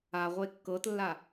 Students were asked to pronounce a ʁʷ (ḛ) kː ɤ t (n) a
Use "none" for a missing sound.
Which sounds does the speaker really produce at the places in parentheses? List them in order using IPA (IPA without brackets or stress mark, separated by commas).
e, lː